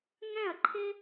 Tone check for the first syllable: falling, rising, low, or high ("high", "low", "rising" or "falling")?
falling